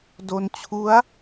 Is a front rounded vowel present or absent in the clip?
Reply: absent